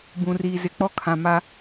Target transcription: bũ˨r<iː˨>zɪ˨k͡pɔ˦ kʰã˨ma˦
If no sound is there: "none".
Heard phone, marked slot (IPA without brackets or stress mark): iː˨